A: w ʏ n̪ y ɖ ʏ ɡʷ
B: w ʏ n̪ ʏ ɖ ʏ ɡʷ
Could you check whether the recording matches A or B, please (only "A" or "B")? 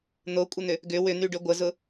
A